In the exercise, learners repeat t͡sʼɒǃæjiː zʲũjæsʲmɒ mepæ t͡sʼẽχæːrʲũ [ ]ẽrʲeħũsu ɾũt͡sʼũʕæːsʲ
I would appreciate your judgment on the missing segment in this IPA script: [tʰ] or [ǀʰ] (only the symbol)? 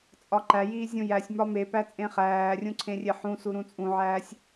ǀʰ